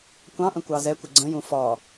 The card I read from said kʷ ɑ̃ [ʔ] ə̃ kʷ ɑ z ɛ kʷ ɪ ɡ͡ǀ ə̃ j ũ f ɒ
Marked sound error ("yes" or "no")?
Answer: no